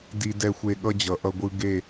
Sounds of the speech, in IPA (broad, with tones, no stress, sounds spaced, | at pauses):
d i˦ d ɛ˦ xʷ e˦ ɠ ʌ˦ d͡ʑ ʌ˨ ʔ ʌ˦ ɡʷ ɯ˦ ɡ e˦˨